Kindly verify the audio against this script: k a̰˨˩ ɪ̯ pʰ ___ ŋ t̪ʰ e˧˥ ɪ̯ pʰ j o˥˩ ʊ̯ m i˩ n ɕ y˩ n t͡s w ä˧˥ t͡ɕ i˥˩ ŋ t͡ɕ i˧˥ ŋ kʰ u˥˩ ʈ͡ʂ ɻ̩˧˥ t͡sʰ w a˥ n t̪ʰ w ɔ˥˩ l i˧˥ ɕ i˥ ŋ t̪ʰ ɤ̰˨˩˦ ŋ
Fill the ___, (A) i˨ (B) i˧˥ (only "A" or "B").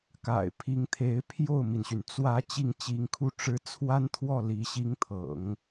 B